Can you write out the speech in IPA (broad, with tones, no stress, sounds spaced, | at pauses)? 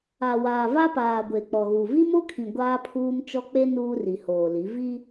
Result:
a˨ w aː˨ v a˦ p aː˨ ɡʷ e˨ k͡p ɔ˨ ɣ u˨ v i˦ m o˦ kʰ ĩ˨ ɡʷ aː˦ pʰ uː˦ m t͡ʃ ɔ˦ k͡p e˦ n uː˦ r i˨ h oː˨ l i˨˦ v i˦